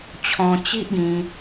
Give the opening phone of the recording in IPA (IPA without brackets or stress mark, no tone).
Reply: t͡ɕʰ